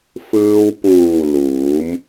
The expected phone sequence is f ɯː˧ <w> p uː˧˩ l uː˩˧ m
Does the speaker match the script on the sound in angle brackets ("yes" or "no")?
yes